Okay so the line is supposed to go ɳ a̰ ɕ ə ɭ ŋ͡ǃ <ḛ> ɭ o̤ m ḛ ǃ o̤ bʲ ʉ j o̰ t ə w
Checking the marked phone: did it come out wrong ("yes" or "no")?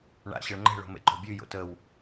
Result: yes